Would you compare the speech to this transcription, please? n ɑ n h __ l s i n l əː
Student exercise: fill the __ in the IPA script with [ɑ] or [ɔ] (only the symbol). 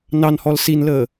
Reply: ɔ